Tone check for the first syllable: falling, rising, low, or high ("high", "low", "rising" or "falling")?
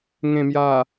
low